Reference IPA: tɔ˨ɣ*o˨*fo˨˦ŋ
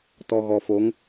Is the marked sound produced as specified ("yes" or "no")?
no